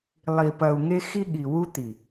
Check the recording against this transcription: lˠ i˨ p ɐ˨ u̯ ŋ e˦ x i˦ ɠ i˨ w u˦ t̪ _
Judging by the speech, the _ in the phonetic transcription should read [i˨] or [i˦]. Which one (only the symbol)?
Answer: i˨